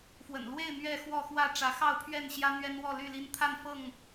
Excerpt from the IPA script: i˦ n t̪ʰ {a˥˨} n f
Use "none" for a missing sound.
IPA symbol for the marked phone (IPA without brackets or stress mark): a˥˨